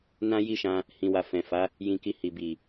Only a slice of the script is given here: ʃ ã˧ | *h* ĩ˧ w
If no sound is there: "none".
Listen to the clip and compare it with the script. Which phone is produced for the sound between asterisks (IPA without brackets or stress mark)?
h